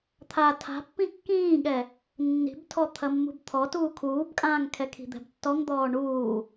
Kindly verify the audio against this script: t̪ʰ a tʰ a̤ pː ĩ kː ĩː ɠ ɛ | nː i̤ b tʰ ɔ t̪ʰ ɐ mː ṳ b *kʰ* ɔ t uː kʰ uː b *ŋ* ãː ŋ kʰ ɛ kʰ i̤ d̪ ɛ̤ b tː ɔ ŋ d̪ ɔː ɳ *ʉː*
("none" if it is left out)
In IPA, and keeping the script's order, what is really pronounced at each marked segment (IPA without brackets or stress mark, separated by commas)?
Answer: t̪ʰ, kʼ, uː